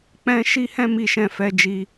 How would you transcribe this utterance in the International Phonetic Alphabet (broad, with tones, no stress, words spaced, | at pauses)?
k͡pɛ̃˧ ʃi˦hɛ̃˦ mi˦ʃɛ̃˦˨ fɛ˨˦d͡ʒi˧